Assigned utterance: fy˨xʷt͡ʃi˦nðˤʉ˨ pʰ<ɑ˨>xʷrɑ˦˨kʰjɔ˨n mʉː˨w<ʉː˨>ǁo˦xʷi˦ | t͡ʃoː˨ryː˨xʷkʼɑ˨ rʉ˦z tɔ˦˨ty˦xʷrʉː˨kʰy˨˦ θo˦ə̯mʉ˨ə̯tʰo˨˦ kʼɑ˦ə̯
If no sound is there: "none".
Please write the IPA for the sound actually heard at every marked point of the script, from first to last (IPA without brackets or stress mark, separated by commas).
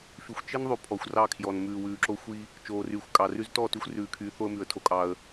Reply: ɔ˨, ʉː˨